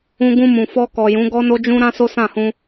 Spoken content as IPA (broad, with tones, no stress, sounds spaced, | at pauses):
ũ˧ ɡ ũ˧ m ũ˨ f ɔ˧ k ɔ˨ j ũ˨˦ ɡ ɔ˦ n o˦ d͡ʒ ũ˦ ɾ ã˦ s o˦ s ã˦˨ h ũ˧